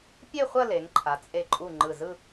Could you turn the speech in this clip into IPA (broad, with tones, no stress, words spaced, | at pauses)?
pʲe˥˧χʷɐ˥˧ le˩˧ŋǃʰa˩˧t͡sʼe˧˩ǃʼu˧˩ ŋ͡ǃɯ˧˩zɯ˥˧